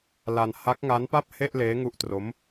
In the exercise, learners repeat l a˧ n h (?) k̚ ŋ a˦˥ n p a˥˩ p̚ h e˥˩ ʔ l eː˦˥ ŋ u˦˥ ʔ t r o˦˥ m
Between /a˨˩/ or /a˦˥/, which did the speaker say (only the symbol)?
a˦˥